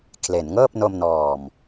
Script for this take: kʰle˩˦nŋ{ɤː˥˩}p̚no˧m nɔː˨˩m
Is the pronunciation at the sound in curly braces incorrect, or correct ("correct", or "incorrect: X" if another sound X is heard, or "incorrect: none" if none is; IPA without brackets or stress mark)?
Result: correct